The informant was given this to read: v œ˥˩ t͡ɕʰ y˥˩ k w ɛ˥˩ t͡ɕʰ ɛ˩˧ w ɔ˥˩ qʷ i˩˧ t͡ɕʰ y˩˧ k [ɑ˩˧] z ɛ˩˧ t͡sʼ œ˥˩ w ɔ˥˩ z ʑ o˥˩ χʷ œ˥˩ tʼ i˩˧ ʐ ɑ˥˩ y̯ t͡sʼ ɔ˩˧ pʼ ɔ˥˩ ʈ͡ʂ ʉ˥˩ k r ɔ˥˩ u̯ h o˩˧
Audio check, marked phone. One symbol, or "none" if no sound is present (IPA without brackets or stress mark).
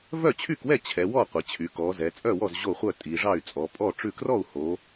ɔ˩˧